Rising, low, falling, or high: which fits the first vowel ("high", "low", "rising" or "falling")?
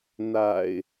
low